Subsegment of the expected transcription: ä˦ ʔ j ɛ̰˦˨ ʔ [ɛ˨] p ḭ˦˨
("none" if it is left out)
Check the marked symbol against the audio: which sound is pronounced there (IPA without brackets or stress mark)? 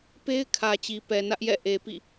e˨